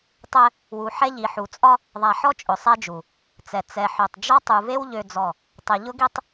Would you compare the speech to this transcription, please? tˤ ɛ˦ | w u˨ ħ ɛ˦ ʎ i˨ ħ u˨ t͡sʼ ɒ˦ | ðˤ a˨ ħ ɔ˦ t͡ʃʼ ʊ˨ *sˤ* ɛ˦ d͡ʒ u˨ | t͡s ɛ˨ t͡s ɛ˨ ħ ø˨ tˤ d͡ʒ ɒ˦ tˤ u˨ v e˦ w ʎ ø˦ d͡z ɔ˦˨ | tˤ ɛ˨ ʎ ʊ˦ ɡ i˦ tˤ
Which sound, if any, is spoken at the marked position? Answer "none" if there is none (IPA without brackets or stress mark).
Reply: sˤ